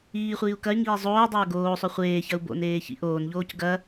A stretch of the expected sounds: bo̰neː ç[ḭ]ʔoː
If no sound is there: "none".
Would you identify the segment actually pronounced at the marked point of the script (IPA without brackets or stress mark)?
ḭ